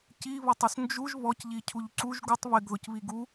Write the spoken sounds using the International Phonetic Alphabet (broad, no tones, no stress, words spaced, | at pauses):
ciβɔtˤus nd͡ʒuʒ βɔcʎi cʰuʎǀuʒ ɡutˤ βɪɡðʊcβiɡ u